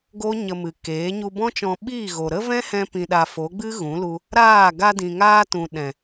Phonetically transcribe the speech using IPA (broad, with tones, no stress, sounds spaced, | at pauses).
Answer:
ɡ o˦ ɲ ə˧ m ɨ˨ k eː˨˦ ɲ u˧ b ɔ̃˦ t͡ʃ ɔ̃˧ ɓ iː˦˨ ɣ o˨ ɾ ə˦ v ɛ̃˦ h ɛ̃˧ p ĩ˨ ɗ a˨ f o˨˦ ɡ͡b ɨ˦ ɣ ũ˨˦ l u˧ | ɾ aː˦˨ ɡ a˧ d ĩ˨ ŋ aː˧ t ũ˨ ɗ ɛ̃˨